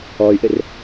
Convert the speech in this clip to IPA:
ɔ y̯ ʔ ɘ r

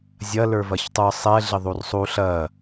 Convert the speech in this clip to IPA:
zʲ ɐ l ə˞ v ɐ ç tˤ ə˞ sˤ ɛ ɮ ɪ ðˤ u r sˤ u ɬ ɐ

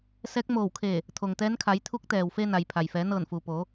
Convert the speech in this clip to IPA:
s ɛː˧˥ k̚ m oː˧˩ w kʰ eː˧˩ | t̪ʰ o˩ ŋ t̪ ɛː˧˥ n kʰ a˩˧ j t̪ʰ u˧˥ k̚ t̪ ɛː˩ w f e˧ n a˩ j pʰ a˩ j f ɛː˩˧ n ɤː˧˩ n f uː˩ p oː˩˧

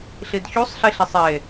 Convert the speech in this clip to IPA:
ɬ i d ç u sˤ ɬ i ɬ e sˤ e

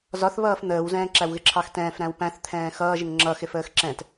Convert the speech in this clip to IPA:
z ɒ θ β ʌː f n̪ əː w z ɛ̃ː ǁ æ w ɣ ɪ ǁʰ ɑ x t ɛ̃ː f ɾ æ̃ w p æ̃ θ t̪ʰ ɛ̃ː x ʌː ʒ ɪ ŋ ŋ͡ǁ ʌ x ɪ f əː x ǁ ɛ̃ t

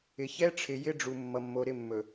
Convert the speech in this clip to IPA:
ɪ˨ ç ɛ˦ ʈ͡ʂʰ ɪ˨ j ɪ˦ ɖ͡ʐ u˨ mː ʌ˨ mː o˨ ɾ ɪ˦˨ mː ɵ˨

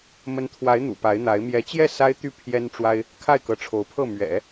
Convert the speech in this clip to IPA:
m ə˧˥ n t̪ʰ w a˧˥ ɪ̯ n̪ ṵ˨˩ p a˧˥ ɪ̯ n̪ a˧˥ ɪ̯ m j ɛ˧˥ t͡ɕ j ɛ˥˩ s a˥ ɪ̯ t̪ y˥˩ pʰ j ɛ˥ n ʈ͡ʂ w a˥ ɪ̯ | kʰ a˥˩ ɪ̯ k ɤ˧˥ ʈ͡ʂʰ o˧˥ ʊ̯ pʰ ɤ˥˩ m ɥ ɛ̰˨˩˦

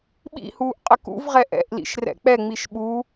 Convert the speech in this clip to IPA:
ɓ ḭ h uː ʔ qʼ ə k ṵ v ʁ ɛ ʔ ɛ̰ ʔ l ḭ ʃ r ɛ̰ k͡p ɛ ŋ͡m i ʃ ɓ u

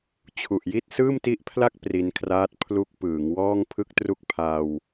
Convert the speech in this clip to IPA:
t͡ɕʰ u˨˩ ʔ j i˥˩ t̚ s ɯː˥˩ m t i˦˥ ʔ pʰ l a˥˩ k̚ p r i˧ n kʰ r aː˦˥ t̚ pʰ l u˦˥ k̚ p ɯː˩˦ ŋ w ɔː˥˩ ŋ pʰ ɯ˥˩ k̚ t r u˥˩ k̚ pʰ a˧ w

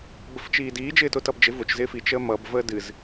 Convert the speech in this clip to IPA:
b ə f t͡ʃ iː d iː d͡ʒ ɪː t ʊ t ʌ b d͡ʒ ɪ v ʊ t͡ʃ z ɪː f i t͡ʃ əː m ʌ b v əː d ɨ z

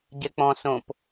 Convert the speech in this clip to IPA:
ɟ ɛ k͡p ɔ̃ s õ p

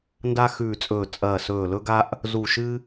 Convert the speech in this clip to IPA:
n d a˥ x ʉː˦˨ t͡sʼ ɵː˦˨ t͡sʼ ɐː˦˨ s ɵː˦˨ l ɵ˥ ɡ a˥ ʔ | z u˦˨ ʃ ɨ˥

